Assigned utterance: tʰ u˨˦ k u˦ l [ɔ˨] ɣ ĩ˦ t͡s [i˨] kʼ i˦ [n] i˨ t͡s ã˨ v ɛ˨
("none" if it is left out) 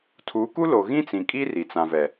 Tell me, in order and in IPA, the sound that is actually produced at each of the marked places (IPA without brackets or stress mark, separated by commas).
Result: o˨, ĩ˨, r